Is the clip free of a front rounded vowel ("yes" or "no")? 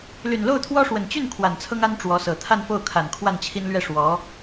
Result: no